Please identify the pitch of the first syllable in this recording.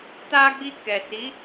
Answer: high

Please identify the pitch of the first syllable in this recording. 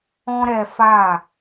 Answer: high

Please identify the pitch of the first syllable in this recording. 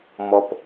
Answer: low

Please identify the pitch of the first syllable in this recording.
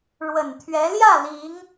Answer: low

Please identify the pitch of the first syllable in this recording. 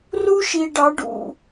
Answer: high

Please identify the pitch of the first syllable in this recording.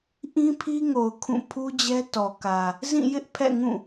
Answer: high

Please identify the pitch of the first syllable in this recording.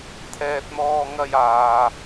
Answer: low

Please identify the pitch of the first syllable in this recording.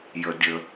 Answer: low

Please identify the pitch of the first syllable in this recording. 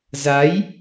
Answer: rising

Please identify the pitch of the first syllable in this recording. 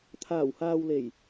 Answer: low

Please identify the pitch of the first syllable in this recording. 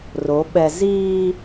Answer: rising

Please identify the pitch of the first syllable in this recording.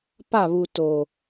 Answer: falling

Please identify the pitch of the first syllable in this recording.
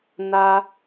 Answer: high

